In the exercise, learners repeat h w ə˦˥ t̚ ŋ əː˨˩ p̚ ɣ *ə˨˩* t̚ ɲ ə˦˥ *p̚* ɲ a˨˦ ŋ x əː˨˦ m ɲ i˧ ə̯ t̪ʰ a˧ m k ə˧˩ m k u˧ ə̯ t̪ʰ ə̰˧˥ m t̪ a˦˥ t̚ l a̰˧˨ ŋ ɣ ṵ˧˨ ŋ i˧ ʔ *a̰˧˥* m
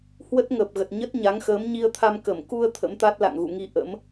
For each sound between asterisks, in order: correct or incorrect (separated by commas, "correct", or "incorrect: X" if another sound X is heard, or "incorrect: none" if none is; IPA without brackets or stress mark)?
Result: correct, incorrect: t̚, incorrect: ə̰˧˥